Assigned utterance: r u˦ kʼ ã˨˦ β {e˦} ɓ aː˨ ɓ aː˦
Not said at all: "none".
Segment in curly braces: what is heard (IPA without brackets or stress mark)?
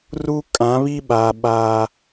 i˦